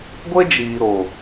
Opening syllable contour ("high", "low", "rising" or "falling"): high